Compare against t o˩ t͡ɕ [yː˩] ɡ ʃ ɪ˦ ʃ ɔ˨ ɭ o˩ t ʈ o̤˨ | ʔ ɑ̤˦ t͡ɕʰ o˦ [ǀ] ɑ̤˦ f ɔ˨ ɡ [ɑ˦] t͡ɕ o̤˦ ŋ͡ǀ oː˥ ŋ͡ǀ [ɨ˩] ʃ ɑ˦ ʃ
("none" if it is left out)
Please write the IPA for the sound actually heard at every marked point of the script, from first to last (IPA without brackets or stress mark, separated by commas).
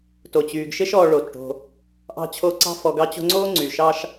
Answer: yː˩, ǀ, ɑ˦, y˩